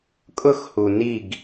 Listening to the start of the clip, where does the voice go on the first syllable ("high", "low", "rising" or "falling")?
falling